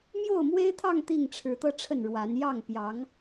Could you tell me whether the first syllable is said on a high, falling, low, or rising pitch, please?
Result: falling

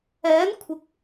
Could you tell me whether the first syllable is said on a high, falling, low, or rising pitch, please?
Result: rising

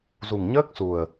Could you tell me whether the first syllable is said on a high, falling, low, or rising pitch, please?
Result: low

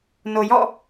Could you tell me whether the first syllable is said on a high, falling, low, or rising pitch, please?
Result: low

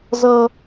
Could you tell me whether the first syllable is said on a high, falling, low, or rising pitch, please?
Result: high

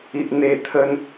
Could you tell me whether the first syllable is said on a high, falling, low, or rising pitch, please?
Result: low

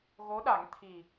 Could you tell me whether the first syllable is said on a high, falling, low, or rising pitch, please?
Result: rising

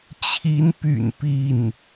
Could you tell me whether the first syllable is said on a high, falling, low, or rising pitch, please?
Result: rising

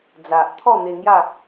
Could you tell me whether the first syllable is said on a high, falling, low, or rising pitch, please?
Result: low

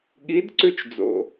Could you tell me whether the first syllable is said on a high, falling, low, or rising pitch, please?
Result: rising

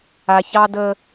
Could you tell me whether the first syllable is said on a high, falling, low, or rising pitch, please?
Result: low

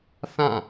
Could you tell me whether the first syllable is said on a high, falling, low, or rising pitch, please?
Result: falling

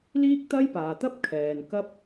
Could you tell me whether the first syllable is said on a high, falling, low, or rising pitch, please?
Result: high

